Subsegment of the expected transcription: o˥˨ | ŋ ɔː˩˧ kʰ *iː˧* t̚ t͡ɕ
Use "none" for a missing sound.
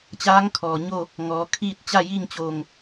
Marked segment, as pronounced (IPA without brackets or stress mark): iː˥˨